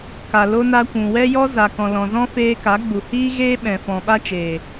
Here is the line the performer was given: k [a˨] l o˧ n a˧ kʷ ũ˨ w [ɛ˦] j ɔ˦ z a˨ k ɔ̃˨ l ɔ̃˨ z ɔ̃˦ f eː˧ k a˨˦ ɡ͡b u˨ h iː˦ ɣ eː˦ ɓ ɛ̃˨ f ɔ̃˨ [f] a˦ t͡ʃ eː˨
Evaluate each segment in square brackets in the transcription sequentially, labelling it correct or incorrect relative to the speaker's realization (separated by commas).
correct, correct, incorrect